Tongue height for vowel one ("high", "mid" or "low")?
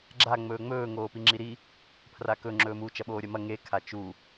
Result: low